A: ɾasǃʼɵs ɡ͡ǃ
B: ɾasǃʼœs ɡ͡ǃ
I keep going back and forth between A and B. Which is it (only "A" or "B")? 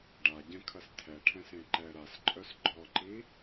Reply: B